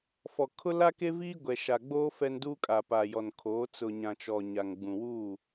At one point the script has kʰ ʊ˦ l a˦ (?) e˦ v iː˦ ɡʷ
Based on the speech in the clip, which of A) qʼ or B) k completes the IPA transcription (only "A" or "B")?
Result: B